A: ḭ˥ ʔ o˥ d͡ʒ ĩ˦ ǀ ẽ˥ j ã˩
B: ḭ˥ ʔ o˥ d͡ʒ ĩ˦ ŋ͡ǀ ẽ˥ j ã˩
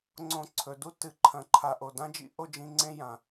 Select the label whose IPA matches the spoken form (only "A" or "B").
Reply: B